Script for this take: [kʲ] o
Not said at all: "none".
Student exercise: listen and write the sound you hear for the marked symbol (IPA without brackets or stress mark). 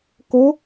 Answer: k